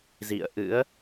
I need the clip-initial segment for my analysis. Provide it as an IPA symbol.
z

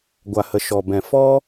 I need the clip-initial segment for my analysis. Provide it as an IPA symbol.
ɡʷ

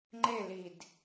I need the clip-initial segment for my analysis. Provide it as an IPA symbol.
ŋ͡ǃ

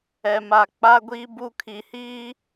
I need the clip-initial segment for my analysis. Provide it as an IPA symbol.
ɛ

